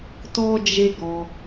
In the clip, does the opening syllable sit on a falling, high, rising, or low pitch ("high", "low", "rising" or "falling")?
high